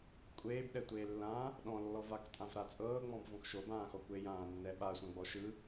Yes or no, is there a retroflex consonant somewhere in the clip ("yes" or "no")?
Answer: no